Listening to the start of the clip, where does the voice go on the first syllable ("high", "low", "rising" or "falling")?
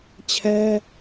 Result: high